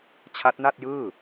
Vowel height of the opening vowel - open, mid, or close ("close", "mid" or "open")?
open